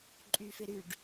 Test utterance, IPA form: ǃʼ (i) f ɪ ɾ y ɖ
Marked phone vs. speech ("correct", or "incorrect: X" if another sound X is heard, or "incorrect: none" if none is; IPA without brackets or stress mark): incorrect: y